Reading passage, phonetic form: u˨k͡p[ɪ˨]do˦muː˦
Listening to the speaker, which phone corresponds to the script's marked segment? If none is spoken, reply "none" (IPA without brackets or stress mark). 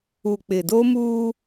ɪ˨